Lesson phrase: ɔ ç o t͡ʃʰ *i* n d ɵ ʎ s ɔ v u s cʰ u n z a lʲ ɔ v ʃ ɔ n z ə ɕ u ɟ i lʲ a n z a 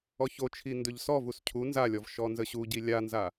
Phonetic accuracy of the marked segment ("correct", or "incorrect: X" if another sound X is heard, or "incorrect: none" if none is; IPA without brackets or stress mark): correct